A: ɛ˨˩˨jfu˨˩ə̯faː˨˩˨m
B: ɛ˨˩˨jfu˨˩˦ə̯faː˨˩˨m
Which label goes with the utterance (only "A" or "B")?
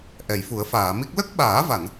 B